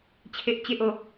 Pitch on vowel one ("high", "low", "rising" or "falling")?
high